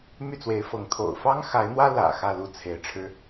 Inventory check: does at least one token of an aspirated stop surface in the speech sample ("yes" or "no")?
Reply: yes